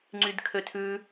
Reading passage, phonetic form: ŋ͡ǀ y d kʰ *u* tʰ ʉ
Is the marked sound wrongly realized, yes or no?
yes